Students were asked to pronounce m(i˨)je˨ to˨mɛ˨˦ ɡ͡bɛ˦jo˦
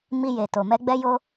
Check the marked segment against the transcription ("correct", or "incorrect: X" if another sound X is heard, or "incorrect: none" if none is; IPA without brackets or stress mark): incorrect: i˧